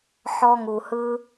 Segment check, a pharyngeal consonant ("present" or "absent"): present